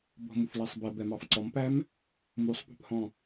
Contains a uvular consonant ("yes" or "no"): no